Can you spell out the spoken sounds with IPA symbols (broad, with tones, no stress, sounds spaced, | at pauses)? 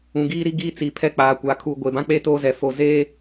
ũ˨ ɡ iː˦ ɾ i˦ ɡ iː˦ t͡s i˨ pʰ ɛ˦ k͡p aː˨ kʷ aː˨ kʰ uː˨ ɡʷ e˨ b ã˦ k͡p eː˦ t oː˦ z ɛ˨ f o˨ z eː˦